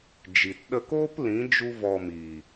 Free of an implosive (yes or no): no